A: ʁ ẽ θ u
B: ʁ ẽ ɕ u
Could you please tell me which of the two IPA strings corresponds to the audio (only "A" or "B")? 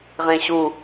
B